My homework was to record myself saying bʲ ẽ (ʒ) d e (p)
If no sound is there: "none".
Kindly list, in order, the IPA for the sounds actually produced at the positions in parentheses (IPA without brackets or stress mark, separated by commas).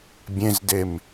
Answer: z, m